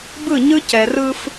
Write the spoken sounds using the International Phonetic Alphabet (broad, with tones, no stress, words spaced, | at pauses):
bɯ˦˨ɲɯ˦cɛ˨ rɯ˦f